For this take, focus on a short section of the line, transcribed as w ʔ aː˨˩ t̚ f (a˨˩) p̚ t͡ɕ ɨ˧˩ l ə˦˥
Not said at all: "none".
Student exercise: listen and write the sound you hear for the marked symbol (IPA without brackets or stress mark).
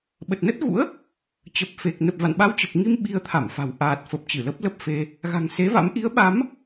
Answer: ə˨˩